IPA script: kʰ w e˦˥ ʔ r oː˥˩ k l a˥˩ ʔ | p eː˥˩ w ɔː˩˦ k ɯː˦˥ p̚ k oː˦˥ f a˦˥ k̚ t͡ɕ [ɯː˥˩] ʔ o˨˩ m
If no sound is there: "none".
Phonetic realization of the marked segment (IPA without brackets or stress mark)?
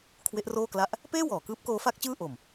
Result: ɯː˥˩